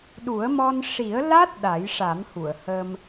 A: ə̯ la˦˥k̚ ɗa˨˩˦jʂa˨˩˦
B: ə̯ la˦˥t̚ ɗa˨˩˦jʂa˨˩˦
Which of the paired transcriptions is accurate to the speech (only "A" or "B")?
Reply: B